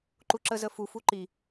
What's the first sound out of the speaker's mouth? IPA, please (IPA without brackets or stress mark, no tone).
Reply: ǃ